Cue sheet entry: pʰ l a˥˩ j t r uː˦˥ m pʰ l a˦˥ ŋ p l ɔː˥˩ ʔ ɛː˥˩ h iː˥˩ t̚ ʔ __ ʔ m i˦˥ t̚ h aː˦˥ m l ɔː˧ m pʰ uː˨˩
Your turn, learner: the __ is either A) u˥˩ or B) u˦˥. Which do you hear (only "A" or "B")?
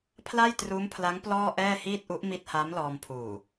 B